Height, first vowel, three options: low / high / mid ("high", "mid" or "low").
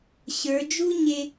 mid